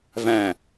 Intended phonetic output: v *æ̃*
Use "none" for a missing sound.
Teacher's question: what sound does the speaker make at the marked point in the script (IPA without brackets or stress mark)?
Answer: æ̃